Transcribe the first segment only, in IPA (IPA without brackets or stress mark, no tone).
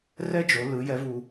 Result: r